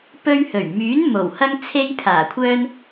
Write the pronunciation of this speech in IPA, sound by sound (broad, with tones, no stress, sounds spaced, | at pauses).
p ɵ˧ ɥ h ɵ˨˩ ɥ m yː˨˥ n m o˨˩ w h ɐ˧ ŋ t͡sʰ e˧ j pʰ aː˨˩ kʷʰ œː˧ n